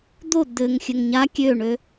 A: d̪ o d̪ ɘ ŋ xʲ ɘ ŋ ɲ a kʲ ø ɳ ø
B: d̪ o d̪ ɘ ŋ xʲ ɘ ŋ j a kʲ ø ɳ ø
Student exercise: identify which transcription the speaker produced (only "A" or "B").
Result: A